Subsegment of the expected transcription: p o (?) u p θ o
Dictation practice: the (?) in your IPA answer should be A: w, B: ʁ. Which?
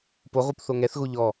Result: B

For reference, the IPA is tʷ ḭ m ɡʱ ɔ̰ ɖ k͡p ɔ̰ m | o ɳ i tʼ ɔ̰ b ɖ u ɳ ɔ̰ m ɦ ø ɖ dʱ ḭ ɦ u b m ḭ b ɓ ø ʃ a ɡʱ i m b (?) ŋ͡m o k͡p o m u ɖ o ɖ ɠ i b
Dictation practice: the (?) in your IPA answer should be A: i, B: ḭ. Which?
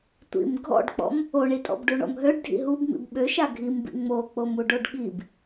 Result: B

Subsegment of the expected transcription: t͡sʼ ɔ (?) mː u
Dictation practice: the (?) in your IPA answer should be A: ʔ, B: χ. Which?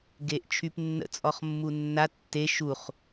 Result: B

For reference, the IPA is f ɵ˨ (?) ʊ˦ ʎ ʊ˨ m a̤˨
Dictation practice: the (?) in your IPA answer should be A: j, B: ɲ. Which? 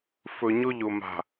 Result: B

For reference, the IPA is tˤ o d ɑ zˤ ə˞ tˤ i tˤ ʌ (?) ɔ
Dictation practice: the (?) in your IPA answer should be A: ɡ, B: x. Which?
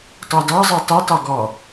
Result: A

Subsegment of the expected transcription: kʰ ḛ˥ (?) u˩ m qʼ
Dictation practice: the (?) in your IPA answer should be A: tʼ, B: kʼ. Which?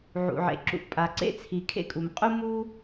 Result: B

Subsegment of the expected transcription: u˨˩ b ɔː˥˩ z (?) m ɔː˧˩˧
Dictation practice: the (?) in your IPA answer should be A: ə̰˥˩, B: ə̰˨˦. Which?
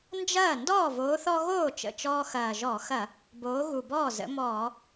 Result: B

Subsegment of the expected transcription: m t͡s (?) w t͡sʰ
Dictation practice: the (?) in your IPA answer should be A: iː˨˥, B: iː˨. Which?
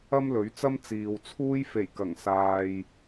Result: B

